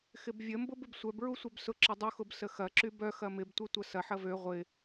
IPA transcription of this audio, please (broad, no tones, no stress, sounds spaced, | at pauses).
x ɪ b vʲ ə m b ʊ b ɪ b sʷ œ b ɹ u sʷ œ b s ʊ ǁ ə dˤ u x ʊ b s ə x ɐ ǁ y b œ x ɐ m ɪ b tʷ œ tʷ ɐ s ɐ ħ ɐ v ø ʁʷ ɪ